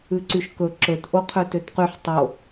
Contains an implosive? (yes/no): no